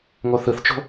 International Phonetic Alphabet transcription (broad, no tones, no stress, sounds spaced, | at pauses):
ŋ o θ ɯ θ t͡ʃ o̤